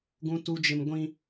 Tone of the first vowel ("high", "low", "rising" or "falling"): high